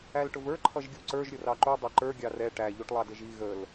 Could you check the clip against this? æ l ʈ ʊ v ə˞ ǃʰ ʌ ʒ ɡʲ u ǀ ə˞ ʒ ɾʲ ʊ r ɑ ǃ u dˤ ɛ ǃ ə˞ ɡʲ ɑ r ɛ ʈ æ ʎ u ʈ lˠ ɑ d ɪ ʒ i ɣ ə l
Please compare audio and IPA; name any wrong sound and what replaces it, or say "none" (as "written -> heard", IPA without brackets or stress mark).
none